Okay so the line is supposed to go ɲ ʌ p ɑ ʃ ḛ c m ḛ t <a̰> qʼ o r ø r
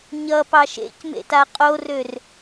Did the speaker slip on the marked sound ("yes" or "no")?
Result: yes